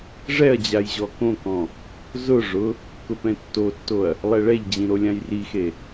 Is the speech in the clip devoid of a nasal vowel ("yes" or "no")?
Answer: no